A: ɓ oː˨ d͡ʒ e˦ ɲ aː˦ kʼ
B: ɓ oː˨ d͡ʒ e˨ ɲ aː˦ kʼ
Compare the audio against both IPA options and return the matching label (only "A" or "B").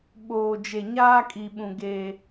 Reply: B